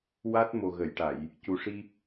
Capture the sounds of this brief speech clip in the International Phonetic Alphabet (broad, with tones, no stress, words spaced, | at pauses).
wa˦˥t̚ mo˨˩ɣə˨˩˨jʈa˨˩˨j | cu˨˩ʂi˧